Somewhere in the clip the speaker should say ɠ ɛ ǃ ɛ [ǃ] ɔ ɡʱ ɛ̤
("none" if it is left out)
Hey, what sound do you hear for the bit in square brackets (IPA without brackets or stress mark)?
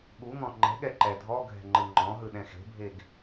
dʱ